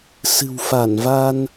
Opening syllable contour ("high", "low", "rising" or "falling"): low